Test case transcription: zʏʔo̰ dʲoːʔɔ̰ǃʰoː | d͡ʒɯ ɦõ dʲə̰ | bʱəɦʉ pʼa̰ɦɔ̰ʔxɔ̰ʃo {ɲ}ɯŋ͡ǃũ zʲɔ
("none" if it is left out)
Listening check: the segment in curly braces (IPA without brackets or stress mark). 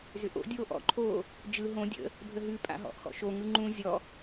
ŋ